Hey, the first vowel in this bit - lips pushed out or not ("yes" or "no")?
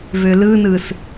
yes